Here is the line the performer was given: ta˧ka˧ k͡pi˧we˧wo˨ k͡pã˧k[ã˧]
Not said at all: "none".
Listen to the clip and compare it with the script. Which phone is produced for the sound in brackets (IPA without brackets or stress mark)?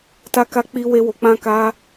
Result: a˧